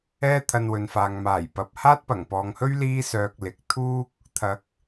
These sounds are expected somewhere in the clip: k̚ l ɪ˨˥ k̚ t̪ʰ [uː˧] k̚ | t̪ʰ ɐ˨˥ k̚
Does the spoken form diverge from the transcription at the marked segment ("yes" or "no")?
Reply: yes